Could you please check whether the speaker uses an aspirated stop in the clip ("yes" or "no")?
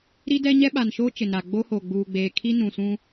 yes